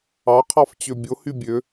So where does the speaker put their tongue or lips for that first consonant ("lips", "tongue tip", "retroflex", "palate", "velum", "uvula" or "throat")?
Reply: uvula